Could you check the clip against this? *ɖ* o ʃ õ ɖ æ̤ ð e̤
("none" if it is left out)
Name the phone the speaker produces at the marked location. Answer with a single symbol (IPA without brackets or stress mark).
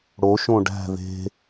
ɽ